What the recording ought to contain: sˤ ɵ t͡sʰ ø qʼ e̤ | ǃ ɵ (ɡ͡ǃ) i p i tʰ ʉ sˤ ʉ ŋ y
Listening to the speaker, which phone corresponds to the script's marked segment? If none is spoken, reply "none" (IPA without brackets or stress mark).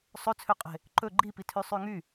ɡ͡ǃ